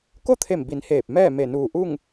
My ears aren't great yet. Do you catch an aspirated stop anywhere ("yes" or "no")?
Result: yes